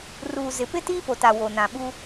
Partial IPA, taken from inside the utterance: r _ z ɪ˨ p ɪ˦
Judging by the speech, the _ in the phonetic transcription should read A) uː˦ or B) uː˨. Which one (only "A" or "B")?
B